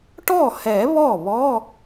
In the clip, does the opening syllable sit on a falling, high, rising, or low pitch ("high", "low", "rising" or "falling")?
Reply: falling